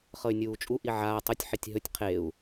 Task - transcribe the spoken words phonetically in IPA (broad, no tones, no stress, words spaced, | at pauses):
χɤy̯nʲuːt͡ʃʼu ʔiʕaː tˤotʲ ħitʲɦɵtʲ qʰeu̯